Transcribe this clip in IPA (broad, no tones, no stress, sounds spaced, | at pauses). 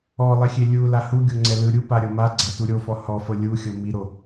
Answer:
ɔ lˠ e xʲ e lʲ u l a h u ɡʲ o ŋ͡ǀ ɛ l ɯ ɾʲ u p a ɾʲ ɤ m a ɡ͡ǀ a t u ɾʲ o f ɔ h ɔ f ɤ lʲ u xʲ ɤ m i ɾ o